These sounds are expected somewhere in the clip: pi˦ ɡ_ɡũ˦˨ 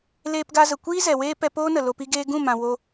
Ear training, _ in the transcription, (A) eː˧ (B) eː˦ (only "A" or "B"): A